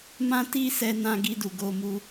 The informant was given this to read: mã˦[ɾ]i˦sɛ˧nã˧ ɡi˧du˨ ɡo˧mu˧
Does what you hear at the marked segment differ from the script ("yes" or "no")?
yes